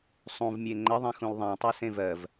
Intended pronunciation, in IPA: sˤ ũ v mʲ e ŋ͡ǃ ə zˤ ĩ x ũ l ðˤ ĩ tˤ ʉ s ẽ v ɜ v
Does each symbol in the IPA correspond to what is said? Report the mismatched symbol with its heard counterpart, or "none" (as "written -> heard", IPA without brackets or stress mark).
zˤ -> ðˤ